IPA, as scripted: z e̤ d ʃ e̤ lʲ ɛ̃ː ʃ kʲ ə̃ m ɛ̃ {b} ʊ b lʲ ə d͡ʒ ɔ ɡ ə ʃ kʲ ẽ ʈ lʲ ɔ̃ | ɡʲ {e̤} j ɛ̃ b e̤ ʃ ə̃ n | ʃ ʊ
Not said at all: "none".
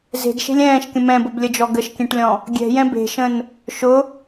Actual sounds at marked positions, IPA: b, ɛ̤

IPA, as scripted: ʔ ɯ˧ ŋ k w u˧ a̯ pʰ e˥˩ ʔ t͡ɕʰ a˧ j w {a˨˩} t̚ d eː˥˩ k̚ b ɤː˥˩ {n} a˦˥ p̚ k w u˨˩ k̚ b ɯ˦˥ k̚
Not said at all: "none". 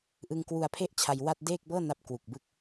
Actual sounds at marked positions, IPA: a˥˩, n

